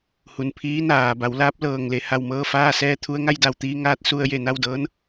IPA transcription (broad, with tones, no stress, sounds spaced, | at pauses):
h u˩ n pʰ iː˧˥ n aː˩ b a˩˧ w l aː˧˥ p̚ l ɤː˧˩ ŋ l e˧ h a˧˩ w m ɤː˥˨ f aː˥˨ s ɛː˥˨ t̪ʰ u˧ ə̯ ŋ a˥˨ j d a˧˩ w t̪ iː˧ ŋ aː˧ t̚ s u˧ ə̯ j e˧˩ n a˥˨ w d ɤː˧˥ n